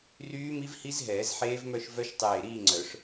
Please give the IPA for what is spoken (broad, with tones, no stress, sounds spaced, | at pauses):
r yː˦˥ m i˦˥ v h i˦˥ z ɦ ɛː˨˩˦ z ħ eː˦˥ v m œ˥˧ ʃ v œ˦˥ ʃ tˤ eː˧˩ ɾ iː˥˧ ŋ͡ǀ œ˨˩˦ ʂ